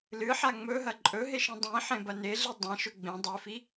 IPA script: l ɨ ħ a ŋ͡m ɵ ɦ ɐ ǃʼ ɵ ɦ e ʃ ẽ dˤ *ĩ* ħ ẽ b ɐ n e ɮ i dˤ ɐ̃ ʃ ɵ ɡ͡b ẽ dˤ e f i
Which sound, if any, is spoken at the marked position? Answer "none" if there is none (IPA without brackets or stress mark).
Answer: ĩ